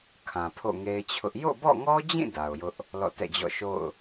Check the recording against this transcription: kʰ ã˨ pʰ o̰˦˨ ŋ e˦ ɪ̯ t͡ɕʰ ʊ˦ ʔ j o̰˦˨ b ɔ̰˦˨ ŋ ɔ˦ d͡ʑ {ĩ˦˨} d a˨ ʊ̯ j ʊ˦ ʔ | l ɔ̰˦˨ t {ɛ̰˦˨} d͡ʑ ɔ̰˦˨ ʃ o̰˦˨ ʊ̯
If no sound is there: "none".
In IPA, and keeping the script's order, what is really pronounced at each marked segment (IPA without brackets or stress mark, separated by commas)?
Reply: ĩ˦˨, ɛ̰˦˨